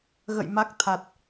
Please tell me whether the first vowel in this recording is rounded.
no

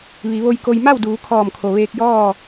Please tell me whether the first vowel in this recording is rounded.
no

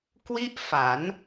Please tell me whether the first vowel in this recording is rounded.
no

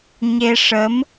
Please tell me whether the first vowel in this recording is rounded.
no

